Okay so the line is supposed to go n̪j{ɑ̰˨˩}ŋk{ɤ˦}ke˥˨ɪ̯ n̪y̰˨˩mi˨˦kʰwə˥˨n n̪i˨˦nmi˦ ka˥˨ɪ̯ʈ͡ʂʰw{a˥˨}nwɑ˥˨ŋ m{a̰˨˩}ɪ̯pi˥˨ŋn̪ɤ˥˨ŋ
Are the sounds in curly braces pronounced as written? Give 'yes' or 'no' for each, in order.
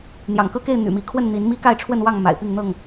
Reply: yes, yes, no, yes

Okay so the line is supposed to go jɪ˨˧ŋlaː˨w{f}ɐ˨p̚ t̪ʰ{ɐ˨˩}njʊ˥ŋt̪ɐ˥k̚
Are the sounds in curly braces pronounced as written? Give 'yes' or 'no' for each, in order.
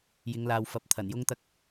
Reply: yes, yes

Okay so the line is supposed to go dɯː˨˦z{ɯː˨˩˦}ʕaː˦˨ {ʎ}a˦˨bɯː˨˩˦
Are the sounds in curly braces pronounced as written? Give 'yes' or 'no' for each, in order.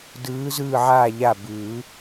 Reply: no, yes

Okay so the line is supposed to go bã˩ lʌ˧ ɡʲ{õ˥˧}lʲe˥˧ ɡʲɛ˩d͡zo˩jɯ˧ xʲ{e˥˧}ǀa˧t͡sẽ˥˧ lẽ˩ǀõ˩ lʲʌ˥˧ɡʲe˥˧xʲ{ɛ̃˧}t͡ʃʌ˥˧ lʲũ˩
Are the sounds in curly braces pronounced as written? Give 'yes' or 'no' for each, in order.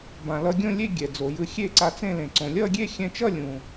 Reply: yes, yes, yes

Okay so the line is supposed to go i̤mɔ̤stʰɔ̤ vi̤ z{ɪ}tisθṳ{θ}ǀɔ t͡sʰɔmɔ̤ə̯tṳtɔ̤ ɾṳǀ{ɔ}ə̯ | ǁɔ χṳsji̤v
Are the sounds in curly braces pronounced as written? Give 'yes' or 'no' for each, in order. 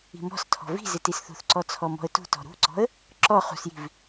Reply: yes, yes, no

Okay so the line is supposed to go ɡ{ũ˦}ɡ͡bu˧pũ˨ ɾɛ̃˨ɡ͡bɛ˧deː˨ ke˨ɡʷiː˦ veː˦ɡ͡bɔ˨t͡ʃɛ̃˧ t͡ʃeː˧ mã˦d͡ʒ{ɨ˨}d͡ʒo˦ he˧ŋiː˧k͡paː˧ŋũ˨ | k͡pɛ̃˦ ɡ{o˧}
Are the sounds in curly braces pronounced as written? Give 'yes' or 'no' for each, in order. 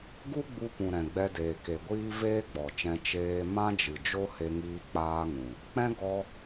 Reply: no, yes, no

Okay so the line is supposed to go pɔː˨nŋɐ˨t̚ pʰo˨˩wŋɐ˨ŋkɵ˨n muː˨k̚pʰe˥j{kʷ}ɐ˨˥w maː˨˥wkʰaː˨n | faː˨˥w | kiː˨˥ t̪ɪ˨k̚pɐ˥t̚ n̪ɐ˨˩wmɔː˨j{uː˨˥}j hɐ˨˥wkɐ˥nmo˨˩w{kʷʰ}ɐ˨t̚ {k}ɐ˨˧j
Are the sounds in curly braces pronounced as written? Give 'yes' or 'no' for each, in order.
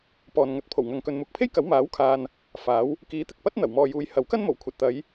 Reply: no, no, yes, no

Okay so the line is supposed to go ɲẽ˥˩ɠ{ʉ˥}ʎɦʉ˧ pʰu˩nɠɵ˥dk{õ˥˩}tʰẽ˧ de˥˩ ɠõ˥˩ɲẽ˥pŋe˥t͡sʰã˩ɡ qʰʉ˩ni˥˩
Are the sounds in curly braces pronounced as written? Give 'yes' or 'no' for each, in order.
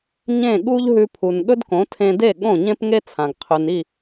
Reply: no, no

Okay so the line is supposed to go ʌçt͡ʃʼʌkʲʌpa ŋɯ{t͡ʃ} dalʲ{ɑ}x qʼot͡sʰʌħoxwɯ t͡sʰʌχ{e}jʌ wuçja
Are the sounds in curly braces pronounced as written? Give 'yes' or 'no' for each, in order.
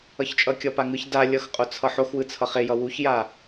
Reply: no, no, yes

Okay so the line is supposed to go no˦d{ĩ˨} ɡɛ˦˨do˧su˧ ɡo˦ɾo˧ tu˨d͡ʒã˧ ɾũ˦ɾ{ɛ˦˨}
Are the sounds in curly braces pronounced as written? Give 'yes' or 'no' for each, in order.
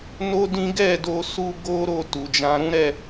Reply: no, yes

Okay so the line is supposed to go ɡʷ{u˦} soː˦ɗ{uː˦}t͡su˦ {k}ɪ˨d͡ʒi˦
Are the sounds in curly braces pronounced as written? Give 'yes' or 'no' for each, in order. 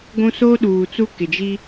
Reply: no, no, yes

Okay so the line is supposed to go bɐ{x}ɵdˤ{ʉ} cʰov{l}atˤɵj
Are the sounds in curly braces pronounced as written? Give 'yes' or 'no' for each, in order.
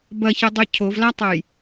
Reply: no, yes, yes

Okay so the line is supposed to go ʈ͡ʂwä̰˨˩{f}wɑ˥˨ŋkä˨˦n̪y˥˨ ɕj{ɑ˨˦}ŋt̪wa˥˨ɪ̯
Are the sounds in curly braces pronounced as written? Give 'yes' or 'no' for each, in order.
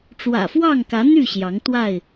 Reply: yes, yes

